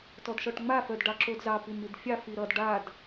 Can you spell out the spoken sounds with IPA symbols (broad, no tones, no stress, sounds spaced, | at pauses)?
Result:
t ɔ d ʃ ɔ ʈ ŋ͡m a f œ d ɖ ɑ ǁ o d z ɑ p i m i d fʲ ɑ f i ɾ ʌ d ɖ a d